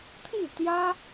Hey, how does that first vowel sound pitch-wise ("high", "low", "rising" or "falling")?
falling